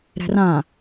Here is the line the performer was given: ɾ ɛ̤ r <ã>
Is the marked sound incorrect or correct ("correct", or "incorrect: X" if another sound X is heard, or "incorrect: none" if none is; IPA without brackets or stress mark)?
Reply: correct